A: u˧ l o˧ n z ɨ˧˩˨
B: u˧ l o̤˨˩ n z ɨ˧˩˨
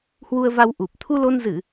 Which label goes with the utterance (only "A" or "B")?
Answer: A